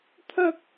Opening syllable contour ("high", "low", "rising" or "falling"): high